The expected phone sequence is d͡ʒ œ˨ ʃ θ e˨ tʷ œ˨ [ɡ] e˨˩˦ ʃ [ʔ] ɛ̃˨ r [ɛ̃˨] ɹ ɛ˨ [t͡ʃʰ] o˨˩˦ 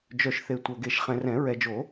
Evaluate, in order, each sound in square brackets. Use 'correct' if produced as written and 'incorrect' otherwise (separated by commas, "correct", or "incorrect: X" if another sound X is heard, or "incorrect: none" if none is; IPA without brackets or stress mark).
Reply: correct, incorrect: χ, incorrect: ɛ̃˨˩˦, incorrect: d͡ʒ